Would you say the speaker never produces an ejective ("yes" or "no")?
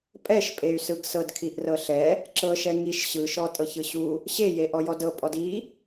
no